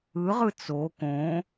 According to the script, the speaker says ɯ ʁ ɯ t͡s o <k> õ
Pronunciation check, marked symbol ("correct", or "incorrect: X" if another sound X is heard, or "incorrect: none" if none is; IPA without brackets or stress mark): correct